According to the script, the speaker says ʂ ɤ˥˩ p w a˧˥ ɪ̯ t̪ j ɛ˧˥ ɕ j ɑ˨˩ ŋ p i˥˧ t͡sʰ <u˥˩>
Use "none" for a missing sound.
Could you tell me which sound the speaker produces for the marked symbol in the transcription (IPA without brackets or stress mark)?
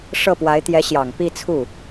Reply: u˥˩